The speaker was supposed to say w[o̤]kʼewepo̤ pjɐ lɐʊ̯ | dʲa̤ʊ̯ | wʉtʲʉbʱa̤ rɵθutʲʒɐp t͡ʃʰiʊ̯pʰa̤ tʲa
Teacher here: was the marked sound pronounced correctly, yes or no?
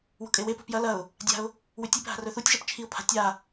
yes